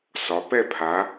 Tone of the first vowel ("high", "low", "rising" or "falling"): rising